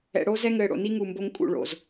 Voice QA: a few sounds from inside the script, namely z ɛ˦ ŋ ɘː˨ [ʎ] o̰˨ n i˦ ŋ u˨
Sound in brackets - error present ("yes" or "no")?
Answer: yes